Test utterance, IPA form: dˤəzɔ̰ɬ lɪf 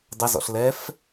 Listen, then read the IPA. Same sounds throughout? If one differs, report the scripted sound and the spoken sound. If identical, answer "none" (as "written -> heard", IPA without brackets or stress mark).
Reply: ɪ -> ɛ